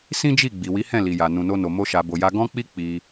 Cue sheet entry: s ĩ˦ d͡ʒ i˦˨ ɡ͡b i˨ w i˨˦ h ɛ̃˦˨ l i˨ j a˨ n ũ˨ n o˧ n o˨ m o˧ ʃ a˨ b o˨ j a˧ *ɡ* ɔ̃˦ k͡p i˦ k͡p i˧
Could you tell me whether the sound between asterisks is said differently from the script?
no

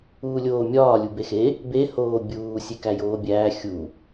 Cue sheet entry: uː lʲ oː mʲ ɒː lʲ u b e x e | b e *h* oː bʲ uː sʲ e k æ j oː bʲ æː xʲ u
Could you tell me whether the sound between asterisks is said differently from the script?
no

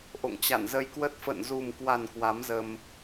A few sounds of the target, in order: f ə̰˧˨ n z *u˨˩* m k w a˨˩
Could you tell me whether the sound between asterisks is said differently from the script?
no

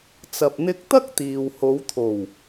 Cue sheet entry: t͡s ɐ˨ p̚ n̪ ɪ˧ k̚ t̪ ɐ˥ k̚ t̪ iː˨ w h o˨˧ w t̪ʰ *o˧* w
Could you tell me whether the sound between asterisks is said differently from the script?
yes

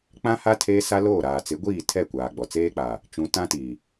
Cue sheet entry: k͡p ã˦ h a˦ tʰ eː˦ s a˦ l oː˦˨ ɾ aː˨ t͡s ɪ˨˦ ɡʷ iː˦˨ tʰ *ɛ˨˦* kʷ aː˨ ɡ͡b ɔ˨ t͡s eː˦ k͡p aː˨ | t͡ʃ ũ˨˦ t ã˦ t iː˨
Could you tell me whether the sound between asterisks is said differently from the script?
yes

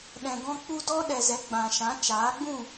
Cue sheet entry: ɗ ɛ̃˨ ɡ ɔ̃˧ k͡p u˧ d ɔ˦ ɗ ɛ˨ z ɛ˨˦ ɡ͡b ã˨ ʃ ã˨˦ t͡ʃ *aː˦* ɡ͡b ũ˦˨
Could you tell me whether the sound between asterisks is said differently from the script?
yes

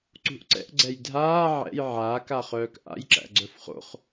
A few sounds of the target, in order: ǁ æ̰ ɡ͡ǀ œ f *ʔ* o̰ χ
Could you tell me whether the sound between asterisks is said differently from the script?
yes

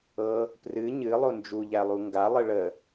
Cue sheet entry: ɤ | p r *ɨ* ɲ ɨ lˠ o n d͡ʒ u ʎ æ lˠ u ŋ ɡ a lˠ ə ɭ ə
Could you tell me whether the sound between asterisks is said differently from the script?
no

